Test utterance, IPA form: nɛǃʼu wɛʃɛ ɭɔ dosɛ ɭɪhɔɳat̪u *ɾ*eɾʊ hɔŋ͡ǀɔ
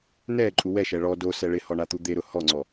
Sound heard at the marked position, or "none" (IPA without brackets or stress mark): d̪